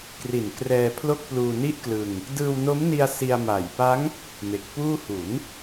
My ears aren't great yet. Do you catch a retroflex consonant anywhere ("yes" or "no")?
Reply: no